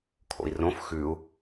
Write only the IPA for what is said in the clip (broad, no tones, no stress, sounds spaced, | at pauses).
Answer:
kʰ o̰ i̯ r õ f x ʉ u̯